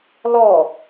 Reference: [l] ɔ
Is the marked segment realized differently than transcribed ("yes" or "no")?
no